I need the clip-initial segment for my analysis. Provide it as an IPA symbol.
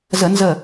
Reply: z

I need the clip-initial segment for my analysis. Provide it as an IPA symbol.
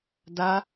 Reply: d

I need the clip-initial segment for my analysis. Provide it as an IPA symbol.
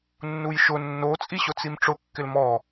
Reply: nː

